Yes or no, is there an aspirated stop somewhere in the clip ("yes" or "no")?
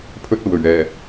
yes